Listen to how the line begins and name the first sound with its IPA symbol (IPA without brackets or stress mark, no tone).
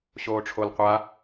ɕ